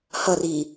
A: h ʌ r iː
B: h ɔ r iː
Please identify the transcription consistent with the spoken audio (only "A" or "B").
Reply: A